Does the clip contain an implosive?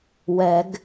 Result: no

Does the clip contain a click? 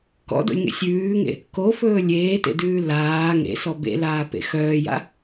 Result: no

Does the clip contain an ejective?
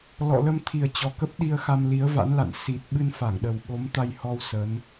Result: no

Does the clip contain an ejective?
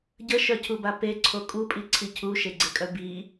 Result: yes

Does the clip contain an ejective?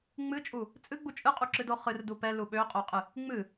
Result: yes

